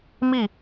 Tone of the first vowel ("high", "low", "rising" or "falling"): falling